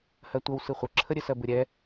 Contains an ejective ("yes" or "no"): no